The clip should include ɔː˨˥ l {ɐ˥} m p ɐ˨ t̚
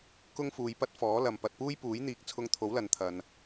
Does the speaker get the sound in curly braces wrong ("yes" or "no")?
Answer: yes